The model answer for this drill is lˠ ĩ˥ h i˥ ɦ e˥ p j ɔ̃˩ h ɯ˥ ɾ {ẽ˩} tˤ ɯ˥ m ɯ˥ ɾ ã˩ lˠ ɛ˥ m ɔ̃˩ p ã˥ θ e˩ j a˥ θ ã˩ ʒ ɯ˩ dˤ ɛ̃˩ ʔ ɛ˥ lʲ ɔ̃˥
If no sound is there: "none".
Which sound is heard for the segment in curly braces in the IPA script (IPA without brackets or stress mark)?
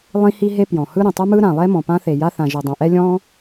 ĩ˩